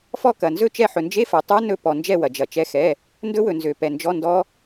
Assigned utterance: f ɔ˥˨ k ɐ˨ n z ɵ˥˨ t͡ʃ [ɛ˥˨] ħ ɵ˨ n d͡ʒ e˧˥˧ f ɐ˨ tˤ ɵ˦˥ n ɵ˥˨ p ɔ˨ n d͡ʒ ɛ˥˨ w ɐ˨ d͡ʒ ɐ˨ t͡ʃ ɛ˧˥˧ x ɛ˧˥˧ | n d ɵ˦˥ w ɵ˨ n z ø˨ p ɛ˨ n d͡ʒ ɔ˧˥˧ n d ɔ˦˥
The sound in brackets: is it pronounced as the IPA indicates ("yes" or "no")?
yes